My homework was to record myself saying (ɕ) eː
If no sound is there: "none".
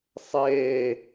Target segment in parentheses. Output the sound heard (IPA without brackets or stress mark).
sˤ